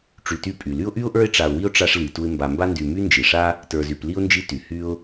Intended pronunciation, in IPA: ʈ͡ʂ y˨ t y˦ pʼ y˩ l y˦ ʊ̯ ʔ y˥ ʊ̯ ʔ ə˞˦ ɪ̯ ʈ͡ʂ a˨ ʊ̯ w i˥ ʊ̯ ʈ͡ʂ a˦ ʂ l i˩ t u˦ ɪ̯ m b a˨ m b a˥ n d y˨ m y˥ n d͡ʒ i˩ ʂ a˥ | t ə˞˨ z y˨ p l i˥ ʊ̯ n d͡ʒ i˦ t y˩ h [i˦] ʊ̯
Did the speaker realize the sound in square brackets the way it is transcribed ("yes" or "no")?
no